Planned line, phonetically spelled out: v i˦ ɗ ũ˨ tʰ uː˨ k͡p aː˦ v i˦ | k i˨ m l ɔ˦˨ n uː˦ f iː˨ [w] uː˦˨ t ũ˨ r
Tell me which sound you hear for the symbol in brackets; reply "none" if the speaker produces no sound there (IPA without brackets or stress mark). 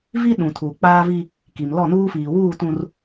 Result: w